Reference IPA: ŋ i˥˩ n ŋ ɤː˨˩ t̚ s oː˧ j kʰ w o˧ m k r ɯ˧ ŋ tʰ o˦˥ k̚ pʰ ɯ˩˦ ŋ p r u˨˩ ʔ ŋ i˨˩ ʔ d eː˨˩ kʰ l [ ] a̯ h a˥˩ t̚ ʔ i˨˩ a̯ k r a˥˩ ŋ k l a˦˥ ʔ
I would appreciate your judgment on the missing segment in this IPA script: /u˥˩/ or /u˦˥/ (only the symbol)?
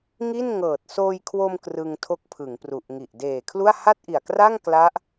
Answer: u˥˩